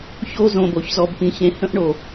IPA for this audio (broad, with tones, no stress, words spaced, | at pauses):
ço˧ zõ˨bo˨çzɔ˨b pĩ˨ çẽ˨ hə̃˦ʔɳo˨